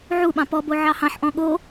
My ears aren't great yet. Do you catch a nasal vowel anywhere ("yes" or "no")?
yes